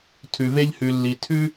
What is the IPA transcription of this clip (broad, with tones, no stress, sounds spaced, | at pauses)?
tʰ ʉ˧ v e˥ ʎ h ʉ˧ lː i˧ tʰ ʉ˥